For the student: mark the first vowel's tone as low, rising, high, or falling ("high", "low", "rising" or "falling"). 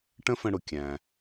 high